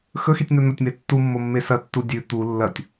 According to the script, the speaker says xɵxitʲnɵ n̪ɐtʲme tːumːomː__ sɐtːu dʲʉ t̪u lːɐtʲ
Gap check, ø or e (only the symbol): e